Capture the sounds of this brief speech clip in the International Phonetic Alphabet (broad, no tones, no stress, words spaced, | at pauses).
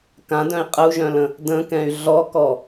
kãdœ̃i̯ qʼəu̯ʒœ̃lə̃ | də̃kɛ̃y̯ ɮɔkɔ